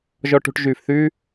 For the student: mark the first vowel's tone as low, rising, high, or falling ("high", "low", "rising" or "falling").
high